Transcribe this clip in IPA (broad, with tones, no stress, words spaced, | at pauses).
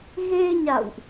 ɣe˧ɲa̰˧˨wʔ